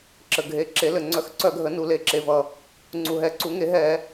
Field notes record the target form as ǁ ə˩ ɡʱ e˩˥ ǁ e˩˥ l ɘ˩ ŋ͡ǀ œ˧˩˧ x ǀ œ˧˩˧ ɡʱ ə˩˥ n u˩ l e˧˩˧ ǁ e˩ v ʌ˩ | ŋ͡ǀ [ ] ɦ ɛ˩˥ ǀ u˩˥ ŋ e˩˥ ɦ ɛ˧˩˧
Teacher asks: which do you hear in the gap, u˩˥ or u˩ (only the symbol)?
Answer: u˩